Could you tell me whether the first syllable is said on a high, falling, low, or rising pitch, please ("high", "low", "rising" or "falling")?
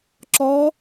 rising